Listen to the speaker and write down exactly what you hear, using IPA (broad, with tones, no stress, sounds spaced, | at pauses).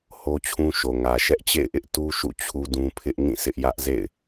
h o˦ t͡ɕʰ ũ˦ ʃ o˨ ŋ ä˨ ʃ ɛ˦ ʔ t͡ɕ ḛ˦˨ ɪ̯ ʔ ɪ˦ ʔ t u˦ ʃ ṵ˦˨ t͡ɕʰ u˦ d ũ˦ pʰ ɪ˦ ʔ ŋ ĩ˦˨ s ɪ˦ ʔ j ä˦ ʔ z ḛ˦˨ ɪ̯